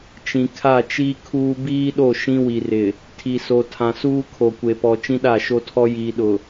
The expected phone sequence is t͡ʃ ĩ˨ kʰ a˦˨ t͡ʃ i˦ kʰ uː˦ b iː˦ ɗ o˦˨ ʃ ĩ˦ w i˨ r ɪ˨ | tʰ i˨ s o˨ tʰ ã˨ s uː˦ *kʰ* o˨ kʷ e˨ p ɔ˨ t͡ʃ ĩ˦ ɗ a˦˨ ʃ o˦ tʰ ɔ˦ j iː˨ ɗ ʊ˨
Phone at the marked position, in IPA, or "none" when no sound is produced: kʰ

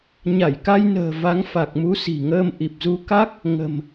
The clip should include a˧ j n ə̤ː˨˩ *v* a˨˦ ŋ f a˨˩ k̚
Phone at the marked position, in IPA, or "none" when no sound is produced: v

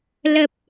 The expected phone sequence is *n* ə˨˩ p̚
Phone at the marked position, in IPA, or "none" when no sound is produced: l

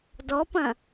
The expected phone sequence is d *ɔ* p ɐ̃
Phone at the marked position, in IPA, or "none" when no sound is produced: ɔ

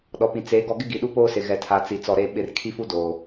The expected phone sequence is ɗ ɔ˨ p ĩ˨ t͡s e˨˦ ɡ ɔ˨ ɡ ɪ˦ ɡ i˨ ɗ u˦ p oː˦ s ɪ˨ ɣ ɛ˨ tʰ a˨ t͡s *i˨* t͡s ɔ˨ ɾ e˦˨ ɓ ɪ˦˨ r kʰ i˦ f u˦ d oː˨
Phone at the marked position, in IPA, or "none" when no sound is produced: i˨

